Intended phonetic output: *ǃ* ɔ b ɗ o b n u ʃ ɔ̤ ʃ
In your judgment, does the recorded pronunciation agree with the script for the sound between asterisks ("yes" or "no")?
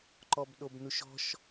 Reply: yes